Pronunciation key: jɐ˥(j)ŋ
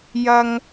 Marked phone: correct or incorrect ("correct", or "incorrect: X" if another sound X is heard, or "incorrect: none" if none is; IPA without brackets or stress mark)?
incorrect: none